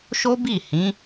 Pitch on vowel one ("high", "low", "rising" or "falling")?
high